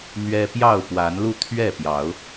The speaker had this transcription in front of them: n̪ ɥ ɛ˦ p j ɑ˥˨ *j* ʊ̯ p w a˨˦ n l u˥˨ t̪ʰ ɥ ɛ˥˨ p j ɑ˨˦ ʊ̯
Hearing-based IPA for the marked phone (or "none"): none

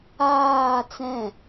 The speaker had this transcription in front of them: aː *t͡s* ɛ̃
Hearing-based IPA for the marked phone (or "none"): t͡s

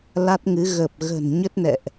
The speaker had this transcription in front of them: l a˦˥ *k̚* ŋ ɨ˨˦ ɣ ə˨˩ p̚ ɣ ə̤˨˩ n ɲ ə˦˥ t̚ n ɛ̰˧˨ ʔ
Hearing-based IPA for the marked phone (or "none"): t̚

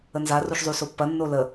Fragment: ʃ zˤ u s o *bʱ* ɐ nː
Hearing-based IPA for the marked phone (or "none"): pː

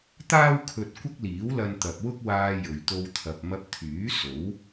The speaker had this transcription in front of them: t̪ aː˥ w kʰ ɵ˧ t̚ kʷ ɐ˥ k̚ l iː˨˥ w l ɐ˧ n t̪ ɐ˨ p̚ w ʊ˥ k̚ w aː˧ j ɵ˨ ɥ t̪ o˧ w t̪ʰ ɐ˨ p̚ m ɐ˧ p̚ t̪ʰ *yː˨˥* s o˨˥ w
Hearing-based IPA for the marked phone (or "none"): yː˨˥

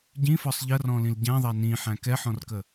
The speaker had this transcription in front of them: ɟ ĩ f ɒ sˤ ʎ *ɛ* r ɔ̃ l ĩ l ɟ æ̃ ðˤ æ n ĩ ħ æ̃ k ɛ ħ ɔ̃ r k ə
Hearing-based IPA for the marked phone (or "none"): ɜ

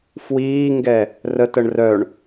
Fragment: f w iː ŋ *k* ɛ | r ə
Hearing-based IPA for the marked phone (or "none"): ɡ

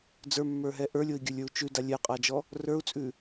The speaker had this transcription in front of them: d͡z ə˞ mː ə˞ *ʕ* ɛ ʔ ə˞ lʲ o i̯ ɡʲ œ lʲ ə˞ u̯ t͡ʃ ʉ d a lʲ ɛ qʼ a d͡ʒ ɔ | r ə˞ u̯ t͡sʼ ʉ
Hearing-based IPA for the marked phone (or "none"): ɦ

